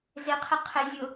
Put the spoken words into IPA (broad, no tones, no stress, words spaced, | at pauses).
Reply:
zɪqʰɪ qʰɪ zʲʊ